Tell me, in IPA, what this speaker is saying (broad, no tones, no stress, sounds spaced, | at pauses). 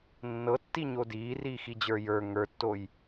nː ɤ tː i ɲ o d iː r iː x i d͡ʑ ə˞ j ə˞ ŋ ə˞ tː o j